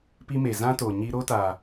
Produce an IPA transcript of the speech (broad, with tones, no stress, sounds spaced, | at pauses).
p i˦ m e˨ z ã˦ t o˨ ɲ i˦ ɾ o˦ t a˨